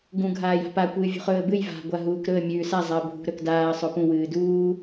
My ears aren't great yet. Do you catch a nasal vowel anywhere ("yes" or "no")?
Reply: yes